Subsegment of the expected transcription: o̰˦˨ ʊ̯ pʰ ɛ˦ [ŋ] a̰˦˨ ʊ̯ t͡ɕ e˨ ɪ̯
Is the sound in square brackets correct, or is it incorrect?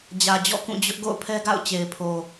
incorrect